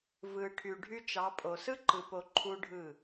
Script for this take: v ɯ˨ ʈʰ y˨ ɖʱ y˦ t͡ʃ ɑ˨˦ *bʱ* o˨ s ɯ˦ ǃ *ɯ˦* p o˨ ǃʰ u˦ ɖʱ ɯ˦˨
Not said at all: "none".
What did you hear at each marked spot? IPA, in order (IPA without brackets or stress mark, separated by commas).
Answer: pʼ, ɯ˨